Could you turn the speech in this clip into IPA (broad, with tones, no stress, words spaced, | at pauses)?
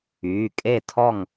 yː˩˧˩kʼe˥˨tʰɔ˥˨ŋ